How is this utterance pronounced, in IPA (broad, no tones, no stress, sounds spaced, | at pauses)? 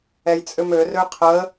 ɛ j t͡sʼ ʏ m ø r ø qʰ ə